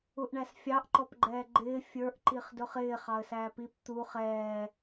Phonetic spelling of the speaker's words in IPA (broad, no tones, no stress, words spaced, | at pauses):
uʔɳæsfʲɑʔ ǃɔpɡ͡ǃɛːɡ͡ǃɪː fʲə˞ʔ ǃiχdʊχɪː χɑə̯sæːpip t̪u χɛː